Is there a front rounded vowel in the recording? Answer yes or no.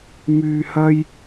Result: yes